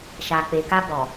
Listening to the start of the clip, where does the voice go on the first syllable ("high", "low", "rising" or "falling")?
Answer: low